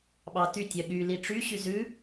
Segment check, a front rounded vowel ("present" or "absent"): present